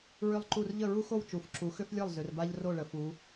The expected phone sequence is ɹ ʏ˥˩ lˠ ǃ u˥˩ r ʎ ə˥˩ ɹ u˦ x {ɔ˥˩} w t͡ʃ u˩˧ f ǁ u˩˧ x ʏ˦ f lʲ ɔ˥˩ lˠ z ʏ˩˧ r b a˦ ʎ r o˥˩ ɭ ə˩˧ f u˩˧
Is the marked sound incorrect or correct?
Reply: incorrect